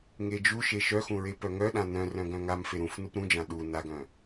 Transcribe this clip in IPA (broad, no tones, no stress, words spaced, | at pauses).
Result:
ŋed͡ʒuʃe ʃœxũ ɹepœŋœɗã nœ̃rœ̃ ɡœ̃ŋamfe ɾũf nupɾũd͡ʒã ɗu naɡœ̃